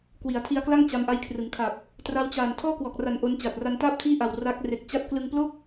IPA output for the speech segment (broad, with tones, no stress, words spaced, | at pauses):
kwi˩˦a̯tʰi˧a̯kla˥˩ŋ t͡ɕa˧mʔa˦˥jkʰrɯ˩˦ŋ kʰa˨˩p̚ | tra˦˥wt͡ɕaː˨˩n tʰɔː˥˩kwɔː˨˩k̚ra˨˩n ʔo˦˥nt͡ɕa˨˩t̚ ra˧ntaː˥˩p̚tʰiː˥˩ʔa˨˩w ra˦˥k̚ re˨˩k̚t͡ɕa˦˥t̚klɯ˧ŋ plo˥˩k̚